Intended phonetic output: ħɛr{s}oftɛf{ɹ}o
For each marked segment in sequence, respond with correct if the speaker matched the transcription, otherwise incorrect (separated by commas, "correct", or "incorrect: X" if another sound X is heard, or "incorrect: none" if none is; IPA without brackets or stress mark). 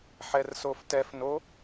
correct, incorrect: n